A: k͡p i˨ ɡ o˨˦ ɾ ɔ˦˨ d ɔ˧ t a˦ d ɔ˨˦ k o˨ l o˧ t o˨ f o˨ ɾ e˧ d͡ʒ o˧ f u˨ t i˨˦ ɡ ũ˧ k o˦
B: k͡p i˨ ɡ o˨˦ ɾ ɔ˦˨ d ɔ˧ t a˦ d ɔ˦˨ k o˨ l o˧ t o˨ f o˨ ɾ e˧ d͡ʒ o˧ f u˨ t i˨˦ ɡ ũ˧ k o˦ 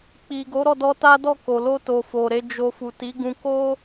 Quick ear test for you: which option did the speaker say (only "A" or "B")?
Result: B